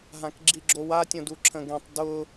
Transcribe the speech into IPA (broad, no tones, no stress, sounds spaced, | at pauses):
ɦ ã k ɡ͡ǁ i ɡ͡ǁ o w a tʲ õ d u ǁʰ ə̃ ɡ ẽ tˤ d ʊ